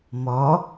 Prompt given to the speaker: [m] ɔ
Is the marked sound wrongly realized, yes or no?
no